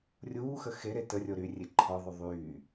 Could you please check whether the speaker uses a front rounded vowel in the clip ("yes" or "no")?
yes